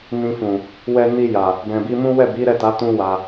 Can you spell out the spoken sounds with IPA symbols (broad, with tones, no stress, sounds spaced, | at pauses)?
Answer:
n ĩ˧ f ũ˨ | w ɛ˧ n i˧ j a˨ | b ɛ̃˨ b i˧ m ũ˦ w ɛ˦˨ b i˨˦ ɾ ɛ˦˨ t a˨˦ t ũ˦ w a˧